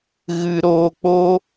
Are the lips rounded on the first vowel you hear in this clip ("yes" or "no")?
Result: no